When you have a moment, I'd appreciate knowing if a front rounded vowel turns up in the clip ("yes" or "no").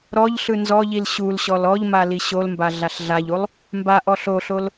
no